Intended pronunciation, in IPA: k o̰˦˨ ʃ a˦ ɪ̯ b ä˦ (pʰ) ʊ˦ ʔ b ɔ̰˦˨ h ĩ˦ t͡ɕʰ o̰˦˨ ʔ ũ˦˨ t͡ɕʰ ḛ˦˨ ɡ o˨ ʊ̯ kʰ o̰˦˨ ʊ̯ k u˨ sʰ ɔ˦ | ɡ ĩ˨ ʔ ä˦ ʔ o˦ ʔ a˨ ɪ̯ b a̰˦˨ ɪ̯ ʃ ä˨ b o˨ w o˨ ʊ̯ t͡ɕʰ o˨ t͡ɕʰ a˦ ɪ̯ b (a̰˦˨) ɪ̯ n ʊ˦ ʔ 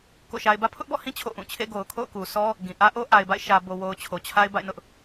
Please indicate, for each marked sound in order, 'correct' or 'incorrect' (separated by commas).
correct, correct